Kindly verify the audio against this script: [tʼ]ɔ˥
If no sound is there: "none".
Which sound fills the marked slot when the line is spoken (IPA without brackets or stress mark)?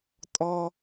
tʼ